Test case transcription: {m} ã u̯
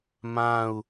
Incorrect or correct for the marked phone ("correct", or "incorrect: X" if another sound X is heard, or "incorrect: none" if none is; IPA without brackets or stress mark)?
correct